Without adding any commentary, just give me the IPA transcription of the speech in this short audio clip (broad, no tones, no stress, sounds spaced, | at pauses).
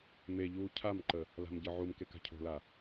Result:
m e ʎ uː cʰ a m ǃ ə | l a̤ m ɟ ɤ ʕ u m k e k a̤ cʰ o̤ l a